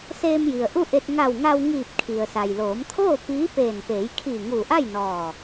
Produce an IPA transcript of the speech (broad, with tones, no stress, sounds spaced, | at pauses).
s eː˧ m j i˩ ə̯ ʔ u˥˨ ʔ e˧ t̚ ŋ a˧˩ w ŋ a˧ w ŋ iː˧˩ p̚ kʰ i˩ ə̯ s a˩ j l oː˩˧ m t̪ʰ oː˥˨ p iː˧˥ p eː˧˩ n p eː˩˧ j kʰ iː˧˩ ŋ uː˧˩ ʔ a˥˨ j n ɔː˧˩